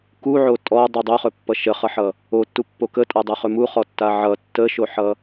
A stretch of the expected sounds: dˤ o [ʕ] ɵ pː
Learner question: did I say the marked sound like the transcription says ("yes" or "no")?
no